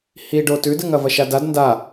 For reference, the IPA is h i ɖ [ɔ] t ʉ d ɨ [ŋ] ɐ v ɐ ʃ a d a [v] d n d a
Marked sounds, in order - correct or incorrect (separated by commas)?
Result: incorrect, correct, incorrect